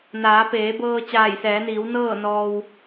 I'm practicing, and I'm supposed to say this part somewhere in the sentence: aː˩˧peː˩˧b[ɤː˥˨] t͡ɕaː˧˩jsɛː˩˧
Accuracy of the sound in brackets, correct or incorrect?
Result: incorrect